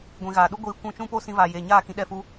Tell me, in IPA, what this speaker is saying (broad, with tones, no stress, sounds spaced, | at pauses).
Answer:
ɡʷ ĩ˨ ɣ aː˨ ɗ u˦ ɡʷ iː˧ kʷ ũ˦˨ t͡ʃ ũ˦ p o˦ s ĩ˧ v aː˨ j eː˨ ɲ aː˦˨ k ĩ˧ ɗ ɛ˧ f u˧